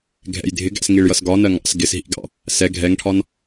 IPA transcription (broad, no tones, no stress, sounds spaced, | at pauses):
ɡʱ ɛ̰ j dʱ ɪ ɡ æ̰ s ŋ i ɭ j ʌ s ɡ ɒ n ɜ ŋ ɑ̰ s ɡ ɪ s ɦ ḭ ɡ ɑ̰ | s ɛ ɡʱ ɛ ŋ ʈʰ ɒ n